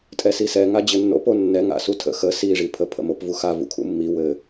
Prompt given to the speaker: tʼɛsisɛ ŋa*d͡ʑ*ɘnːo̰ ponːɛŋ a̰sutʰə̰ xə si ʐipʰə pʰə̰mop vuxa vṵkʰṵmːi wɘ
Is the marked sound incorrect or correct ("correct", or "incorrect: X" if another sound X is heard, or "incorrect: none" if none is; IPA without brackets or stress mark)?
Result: correct